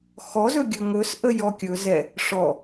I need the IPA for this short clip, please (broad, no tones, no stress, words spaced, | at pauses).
xɔzɵ ɡʲɵŋɵsʔə jɔkʲɵ zɛ | ʂɔ